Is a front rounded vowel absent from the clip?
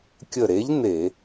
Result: yes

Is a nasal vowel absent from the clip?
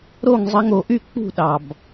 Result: yes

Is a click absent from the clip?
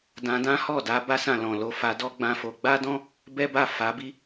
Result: yes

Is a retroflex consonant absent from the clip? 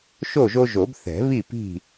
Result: yes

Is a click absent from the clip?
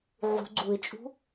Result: no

